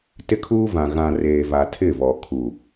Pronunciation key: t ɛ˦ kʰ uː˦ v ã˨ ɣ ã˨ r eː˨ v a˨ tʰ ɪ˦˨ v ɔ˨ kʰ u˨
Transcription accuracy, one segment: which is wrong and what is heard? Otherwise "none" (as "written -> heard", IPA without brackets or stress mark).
ɛ˦ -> ɪ˦